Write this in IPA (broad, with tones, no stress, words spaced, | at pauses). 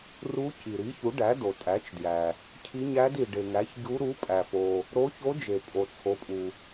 ru˧˥ci˩ɾi˩˥çu˩˥ ɖæ˩˥do˩tʼæ˩˥t͡ʃdjæ˩ | cʰi˧˥ɲæ˧˥d i˩ɖe˩ ŋæ˩˥çɟu˧˥ ɾu˩˥pʼæ˩fo˩ | ɾo˧˥ço˧˥ d͡ʒe˩pʼo˩ t͡sʰo˩˥pʼu˩